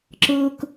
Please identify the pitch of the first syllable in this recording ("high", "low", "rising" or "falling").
high